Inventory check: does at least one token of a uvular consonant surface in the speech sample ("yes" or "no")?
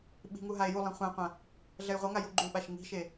yes